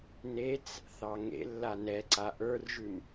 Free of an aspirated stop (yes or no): yes